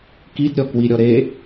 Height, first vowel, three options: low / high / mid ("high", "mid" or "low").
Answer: high